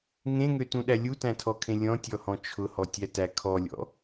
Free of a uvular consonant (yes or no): yes